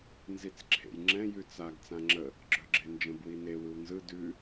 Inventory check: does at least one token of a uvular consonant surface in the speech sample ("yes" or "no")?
no